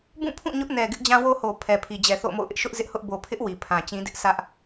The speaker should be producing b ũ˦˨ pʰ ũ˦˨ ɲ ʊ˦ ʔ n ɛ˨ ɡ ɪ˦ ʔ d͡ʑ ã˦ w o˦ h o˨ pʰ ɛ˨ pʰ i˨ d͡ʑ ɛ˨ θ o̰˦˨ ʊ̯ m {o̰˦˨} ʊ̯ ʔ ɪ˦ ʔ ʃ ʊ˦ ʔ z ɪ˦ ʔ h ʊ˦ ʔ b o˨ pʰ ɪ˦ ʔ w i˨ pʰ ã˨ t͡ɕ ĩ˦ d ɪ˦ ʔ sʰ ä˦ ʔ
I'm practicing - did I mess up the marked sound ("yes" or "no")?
no